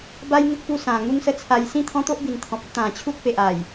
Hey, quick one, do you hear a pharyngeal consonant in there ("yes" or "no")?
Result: no